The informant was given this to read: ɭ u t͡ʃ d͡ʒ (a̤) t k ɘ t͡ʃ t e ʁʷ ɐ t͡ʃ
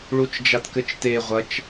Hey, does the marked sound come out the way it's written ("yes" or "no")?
no